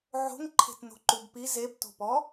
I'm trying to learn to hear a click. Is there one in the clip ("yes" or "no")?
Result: yes